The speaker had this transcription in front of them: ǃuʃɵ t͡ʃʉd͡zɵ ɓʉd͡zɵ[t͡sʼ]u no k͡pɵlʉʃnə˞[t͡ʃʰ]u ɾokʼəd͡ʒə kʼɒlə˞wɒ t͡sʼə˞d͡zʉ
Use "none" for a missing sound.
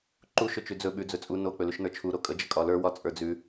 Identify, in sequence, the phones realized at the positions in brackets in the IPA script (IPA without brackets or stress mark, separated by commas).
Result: t͡sʼ, t͡ʃʰ